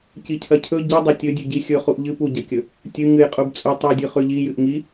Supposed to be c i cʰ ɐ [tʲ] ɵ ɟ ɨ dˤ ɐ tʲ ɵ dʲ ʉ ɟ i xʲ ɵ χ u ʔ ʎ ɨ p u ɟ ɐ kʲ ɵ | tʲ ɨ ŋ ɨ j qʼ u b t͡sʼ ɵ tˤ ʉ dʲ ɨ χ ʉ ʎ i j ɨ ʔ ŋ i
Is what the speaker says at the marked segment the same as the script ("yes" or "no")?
no